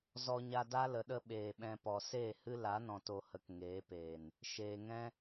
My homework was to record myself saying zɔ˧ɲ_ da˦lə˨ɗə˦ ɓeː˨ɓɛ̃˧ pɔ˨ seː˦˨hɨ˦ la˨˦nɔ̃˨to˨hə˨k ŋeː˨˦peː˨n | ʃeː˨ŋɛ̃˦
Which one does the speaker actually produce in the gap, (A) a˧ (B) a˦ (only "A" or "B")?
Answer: A